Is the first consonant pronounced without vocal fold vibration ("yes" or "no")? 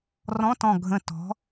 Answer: no